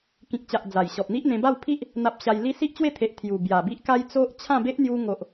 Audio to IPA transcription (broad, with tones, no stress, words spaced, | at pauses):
kĩ˨k̚t͡ɕa˨ʔ d͡za˨˩jɕɔ˨p̚n̪i˦ʔn̪ẽ˧ ba˥˧wpʰi˦ʔ | n̪a˨p̚ ɕa˧jli˦ si˦ʔt͡ɕwe˥˧t̪ʰe˨ʔ t̪ʰju˨˩ bja˨˩bi˦ʔ ka˦jt͡so˦ʔ t͡ɕʰã˥˧be˦ʔn̪ju˧ŋo˨ʔ